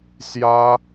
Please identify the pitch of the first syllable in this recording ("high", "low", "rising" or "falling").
high